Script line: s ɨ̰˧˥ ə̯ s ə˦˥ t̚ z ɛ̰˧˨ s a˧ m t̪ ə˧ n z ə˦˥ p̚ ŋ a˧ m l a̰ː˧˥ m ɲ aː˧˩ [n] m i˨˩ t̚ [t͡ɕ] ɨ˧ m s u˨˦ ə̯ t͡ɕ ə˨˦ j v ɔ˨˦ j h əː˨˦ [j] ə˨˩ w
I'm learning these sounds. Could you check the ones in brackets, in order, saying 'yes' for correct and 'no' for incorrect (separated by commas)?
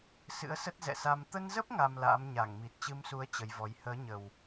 no, yes, no